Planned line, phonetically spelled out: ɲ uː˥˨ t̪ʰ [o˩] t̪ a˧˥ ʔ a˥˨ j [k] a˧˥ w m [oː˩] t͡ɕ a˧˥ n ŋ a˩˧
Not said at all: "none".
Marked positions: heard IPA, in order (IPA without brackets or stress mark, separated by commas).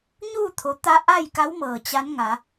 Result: o˩˧, k, ɤː˩